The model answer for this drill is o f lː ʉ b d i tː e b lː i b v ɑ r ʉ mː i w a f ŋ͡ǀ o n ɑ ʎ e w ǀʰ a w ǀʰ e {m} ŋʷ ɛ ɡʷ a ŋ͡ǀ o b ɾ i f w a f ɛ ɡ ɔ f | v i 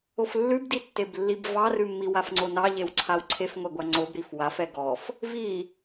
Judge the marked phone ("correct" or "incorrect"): incorrect